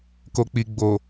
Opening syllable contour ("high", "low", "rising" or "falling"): low